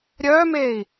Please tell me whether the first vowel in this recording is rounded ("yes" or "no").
yes